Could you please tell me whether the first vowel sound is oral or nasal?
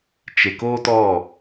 oral